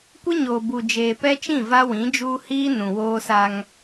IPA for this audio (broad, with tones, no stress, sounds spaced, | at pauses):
kʷ ɪ˦ ɲ oː˨ b u˨ d͡ʒ eː˨ p ɛ˦ t͡ʃ ĩ˦˨ v a˦ w ĩ˨˦ d͡ʒ uː˦ h iː˦ n ũ˨ w oː˦ s a˦ ŋ